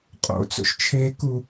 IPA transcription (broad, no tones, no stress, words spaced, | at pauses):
qʼo̰t͡so̰ʃ t͡ʃʰeku